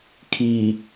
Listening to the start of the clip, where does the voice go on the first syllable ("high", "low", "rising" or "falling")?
low